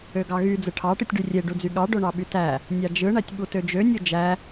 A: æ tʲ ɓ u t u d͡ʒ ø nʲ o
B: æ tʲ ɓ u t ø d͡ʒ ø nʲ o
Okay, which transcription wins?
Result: B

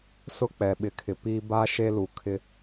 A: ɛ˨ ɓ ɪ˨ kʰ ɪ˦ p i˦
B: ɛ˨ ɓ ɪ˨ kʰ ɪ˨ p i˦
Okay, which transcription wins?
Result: B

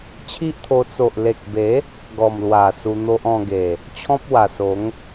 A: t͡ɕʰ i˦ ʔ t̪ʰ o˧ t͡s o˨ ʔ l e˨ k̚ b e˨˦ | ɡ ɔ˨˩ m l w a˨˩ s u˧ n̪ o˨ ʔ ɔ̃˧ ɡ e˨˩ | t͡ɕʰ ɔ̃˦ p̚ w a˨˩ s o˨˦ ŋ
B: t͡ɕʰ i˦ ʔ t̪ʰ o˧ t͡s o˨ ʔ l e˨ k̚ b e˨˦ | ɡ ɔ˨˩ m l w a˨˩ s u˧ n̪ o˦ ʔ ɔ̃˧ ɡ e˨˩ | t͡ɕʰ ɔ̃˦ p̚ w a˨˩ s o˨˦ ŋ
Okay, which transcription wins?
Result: B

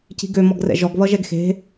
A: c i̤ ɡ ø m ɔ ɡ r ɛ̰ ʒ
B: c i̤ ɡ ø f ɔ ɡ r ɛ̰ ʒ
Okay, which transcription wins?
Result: A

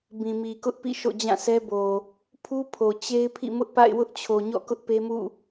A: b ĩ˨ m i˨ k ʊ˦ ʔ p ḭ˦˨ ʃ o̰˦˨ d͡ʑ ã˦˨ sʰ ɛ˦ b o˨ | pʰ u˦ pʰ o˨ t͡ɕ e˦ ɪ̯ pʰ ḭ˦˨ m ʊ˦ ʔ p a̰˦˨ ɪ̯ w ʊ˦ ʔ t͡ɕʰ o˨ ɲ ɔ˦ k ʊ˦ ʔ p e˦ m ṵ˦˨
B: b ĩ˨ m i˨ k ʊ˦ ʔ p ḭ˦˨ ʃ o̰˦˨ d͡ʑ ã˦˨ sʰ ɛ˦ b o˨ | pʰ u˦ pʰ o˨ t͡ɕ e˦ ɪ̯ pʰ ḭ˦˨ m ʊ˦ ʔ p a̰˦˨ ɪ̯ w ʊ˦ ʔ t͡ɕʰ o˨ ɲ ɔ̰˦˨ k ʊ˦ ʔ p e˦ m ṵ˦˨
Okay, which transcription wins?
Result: B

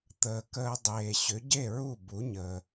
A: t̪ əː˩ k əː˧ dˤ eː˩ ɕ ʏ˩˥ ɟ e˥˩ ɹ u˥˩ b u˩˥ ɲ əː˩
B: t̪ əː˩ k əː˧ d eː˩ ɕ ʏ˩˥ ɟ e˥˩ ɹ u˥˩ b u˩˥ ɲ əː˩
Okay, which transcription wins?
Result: A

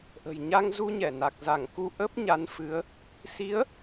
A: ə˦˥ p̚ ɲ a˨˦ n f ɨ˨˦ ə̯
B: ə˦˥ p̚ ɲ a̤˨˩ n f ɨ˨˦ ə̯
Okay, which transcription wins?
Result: A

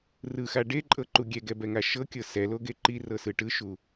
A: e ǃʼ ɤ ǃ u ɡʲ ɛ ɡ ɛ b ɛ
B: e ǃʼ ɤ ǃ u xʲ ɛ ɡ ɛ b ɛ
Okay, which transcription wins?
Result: A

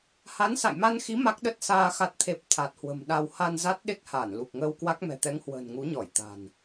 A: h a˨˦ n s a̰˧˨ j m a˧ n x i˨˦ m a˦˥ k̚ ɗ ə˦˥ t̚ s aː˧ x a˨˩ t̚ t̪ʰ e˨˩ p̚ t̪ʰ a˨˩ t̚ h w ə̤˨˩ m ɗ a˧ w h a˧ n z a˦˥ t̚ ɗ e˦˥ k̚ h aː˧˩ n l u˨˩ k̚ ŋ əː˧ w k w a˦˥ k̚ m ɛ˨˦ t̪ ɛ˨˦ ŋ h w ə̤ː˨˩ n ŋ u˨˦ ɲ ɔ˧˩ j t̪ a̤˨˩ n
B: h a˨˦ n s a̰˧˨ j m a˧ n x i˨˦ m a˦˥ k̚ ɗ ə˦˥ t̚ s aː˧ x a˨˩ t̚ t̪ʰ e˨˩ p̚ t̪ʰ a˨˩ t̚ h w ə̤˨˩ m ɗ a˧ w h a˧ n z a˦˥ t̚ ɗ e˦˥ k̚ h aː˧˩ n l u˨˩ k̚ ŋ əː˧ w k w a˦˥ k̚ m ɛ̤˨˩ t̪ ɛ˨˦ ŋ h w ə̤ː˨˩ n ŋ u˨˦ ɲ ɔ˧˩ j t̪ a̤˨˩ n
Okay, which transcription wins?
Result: B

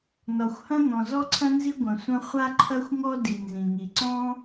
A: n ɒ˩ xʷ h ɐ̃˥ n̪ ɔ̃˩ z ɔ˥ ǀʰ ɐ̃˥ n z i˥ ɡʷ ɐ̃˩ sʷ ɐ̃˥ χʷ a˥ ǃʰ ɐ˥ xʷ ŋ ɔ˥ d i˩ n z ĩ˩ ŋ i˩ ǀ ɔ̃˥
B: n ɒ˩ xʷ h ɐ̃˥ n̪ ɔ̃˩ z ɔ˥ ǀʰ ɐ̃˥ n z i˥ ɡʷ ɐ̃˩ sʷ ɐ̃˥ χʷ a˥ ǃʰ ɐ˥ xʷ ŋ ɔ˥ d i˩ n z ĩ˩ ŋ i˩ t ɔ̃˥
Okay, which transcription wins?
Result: A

